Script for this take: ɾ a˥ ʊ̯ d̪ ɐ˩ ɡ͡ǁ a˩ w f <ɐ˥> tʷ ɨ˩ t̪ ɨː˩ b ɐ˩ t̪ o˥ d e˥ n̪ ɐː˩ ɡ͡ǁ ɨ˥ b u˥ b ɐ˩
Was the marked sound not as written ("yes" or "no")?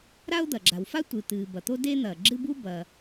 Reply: yes